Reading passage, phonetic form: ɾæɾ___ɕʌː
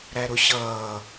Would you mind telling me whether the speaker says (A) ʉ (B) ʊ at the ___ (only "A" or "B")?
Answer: B